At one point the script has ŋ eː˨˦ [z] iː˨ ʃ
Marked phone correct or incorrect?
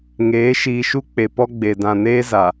incorrect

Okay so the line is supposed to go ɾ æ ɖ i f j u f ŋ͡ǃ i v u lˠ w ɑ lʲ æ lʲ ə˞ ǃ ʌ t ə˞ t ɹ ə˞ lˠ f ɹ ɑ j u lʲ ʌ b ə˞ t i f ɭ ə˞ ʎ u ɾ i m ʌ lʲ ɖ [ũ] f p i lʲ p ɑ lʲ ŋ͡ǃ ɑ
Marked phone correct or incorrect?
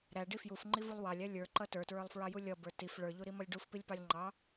incorrect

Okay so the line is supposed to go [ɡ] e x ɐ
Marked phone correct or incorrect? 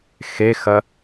incorrect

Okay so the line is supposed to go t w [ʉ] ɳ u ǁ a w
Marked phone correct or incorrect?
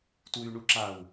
correct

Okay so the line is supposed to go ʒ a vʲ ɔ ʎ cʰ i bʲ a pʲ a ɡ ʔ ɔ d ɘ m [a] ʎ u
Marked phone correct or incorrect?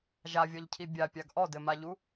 correct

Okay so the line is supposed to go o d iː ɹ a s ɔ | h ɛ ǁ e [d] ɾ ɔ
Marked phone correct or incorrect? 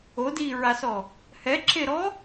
incorrect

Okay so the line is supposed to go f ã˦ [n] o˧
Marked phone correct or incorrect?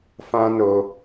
correct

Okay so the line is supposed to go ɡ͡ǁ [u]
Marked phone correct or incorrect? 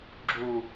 correct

